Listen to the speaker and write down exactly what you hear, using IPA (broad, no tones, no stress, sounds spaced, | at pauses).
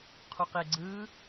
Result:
qʰ u q e ɡ͡ǀ ɯ